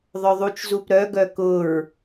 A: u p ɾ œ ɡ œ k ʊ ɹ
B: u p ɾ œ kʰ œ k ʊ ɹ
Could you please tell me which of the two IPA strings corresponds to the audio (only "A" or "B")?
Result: A